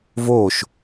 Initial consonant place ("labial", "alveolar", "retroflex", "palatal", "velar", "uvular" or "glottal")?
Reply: labial